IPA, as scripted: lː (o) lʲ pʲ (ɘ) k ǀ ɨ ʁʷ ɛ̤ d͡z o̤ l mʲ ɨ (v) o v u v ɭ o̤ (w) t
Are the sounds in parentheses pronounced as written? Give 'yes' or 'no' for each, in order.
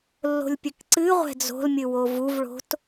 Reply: no, yes, no, no

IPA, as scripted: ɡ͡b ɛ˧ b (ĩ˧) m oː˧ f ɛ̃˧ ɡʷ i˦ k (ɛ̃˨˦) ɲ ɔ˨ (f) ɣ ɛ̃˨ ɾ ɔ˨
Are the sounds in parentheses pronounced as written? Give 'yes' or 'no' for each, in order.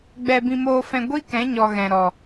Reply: yes, yes, no

